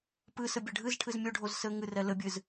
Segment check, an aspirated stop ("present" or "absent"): present